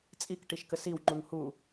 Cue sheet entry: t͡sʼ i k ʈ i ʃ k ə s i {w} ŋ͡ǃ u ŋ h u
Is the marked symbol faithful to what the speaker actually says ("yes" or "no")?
yes